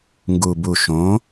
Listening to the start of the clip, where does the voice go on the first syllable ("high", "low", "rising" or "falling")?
low